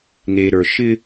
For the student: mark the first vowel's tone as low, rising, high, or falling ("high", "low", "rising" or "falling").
low